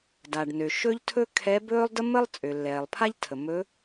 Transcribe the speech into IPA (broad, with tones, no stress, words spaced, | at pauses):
da˩ɖnø˩ ʃɵ˥ʎtʰɵ˥ kʰɛ˧˥ bɵː˥lˠ də˥mə˥lˠ t͡sʼø˩lːɛː˩lˠpʰa˥ʎ tʰə˩ mɵ˧˥